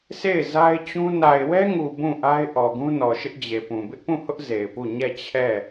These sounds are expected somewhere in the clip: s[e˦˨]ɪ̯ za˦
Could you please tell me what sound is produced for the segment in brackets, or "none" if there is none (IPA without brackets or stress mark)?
e˦˨